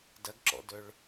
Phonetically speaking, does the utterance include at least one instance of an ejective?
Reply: no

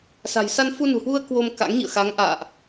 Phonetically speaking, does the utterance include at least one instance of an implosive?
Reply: no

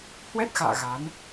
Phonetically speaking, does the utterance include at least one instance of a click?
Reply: no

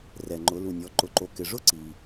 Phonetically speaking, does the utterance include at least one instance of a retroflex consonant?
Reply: yes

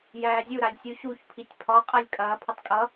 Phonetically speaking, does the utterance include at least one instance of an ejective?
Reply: yes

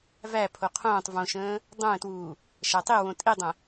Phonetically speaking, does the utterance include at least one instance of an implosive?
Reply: no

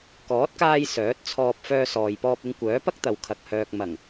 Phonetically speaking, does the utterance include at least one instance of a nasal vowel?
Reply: no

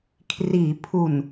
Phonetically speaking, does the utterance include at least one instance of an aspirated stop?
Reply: yes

